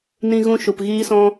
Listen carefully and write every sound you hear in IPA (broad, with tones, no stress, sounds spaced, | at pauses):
n ĩ˧ ɣ ũ˧ ʃ u˨ p ɣ iː˧ s ɔ̃˧